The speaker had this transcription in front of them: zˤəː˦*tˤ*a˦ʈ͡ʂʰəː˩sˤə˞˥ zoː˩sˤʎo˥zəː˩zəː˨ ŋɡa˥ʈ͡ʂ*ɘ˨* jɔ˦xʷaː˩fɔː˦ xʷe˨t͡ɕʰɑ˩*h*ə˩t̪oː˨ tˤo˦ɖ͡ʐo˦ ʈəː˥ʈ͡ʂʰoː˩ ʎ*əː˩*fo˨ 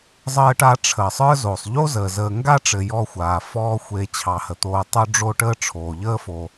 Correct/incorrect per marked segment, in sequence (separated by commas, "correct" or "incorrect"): incorrect, correct, correct, incorrect